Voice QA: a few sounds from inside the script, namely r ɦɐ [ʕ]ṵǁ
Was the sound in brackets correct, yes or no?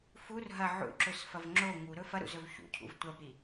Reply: yes